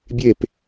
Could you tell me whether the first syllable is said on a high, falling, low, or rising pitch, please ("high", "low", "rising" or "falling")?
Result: falling